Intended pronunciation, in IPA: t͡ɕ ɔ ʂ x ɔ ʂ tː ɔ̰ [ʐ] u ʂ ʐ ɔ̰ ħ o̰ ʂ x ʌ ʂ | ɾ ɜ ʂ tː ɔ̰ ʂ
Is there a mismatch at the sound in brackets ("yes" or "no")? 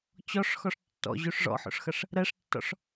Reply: yes